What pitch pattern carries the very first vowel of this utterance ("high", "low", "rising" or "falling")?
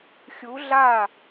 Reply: rising